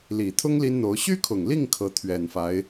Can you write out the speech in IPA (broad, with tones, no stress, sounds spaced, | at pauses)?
l i˨˩ t̪ʰ ʊ˥ ŋ l i˥ n n̪ o˧˥ ʊ̯ ɕ y˥ kʰ ʊ˨˩ ŋ l i˥˩ ŋ kʰ ɤ˧˥ t̪ʰ ɥ ɛ˨˩ n f a˧˥ ɪ̯